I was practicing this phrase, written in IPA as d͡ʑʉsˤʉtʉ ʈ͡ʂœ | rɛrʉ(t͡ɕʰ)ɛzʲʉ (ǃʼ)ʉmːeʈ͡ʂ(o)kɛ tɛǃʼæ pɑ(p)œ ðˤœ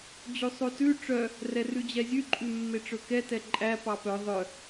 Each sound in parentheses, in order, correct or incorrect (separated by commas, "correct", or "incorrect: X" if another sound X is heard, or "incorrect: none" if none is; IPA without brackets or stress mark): incorrect: d͡ʑ, correct, incorrect: ɵ, correct